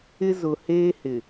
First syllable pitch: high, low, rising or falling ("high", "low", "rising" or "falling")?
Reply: high